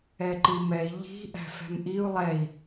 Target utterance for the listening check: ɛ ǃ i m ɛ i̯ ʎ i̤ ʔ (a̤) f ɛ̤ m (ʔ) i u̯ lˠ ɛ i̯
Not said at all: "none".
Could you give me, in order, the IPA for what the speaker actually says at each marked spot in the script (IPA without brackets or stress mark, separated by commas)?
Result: æ̤, ʔ